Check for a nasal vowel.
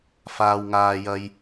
absent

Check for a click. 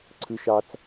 present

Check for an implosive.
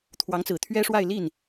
absent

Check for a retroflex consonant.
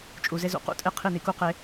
absent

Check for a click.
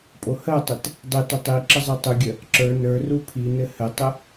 present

